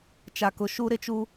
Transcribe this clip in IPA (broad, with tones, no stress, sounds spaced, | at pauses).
t͡ʃ a˨ k ʊ˨ ʃ u˦ ɾ ɪ˦ t͡ʃ u˦